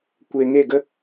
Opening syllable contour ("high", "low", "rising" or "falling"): low